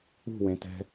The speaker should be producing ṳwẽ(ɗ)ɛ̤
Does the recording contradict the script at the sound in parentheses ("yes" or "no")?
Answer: yes